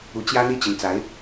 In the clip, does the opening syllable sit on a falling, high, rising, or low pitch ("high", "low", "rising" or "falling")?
rising